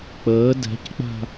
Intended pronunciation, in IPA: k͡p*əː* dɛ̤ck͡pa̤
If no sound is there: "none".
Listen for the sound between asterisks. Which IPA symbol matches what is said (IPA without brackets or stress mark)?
əː